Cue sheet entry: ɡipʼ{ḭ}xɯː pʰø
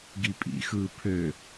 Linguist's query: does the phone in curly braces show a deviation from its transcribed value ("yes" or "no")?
no